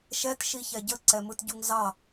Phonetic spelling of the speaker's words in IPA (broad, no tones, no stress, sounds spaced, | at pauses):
ʃ ɛ t ʃ i ç ɛ ɟ ə ǀ ɛ m ɯ t ɟ u ŋ z ɑ